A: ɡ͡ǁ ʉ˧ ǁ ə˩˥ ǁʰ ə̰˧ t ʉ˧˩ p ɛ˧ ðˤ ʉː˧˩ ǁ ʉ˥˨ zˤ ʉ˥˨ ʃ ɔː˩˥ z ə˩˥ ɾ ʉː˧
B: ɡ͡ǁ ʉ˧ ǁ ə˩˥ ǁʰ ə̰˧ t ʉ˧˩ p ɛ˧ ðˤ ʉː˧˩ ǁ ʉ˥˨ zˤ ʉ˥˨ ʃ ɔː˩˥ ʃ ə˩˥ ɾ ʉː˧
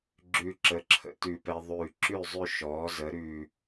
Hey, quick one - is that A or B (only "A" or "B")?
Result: A